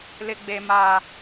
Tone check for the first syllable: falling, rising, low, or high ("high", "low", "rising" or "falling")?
high